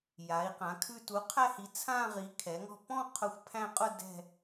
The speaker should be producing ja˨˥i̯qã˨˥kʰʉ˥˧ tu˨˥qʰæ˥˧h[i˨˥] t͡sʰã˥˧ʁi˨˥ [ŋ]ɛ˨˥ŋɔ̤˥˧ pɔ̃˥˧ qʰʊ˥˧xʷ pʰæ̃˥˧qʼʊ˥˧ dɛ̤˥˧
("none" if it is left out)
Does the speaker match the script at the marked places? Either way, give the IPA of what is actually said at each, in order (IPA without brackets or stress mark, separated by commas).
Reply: i˨˥, kʰ